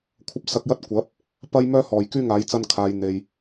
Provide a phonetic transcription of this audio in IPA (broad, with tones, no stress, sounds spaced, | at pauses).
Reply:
kʷʰ ɐ˧ p̚ s ɐ˧ k̚ j ɐ˥ t̚ kʷ ɐ˨˥ p̚ | p ɐ˥ j m œː˥ h ɔː˨˩ j k yː˥ ŋ aː˨˥ j t͡s ɐ˧ n kʰ aː˨ j n̪ e˨ j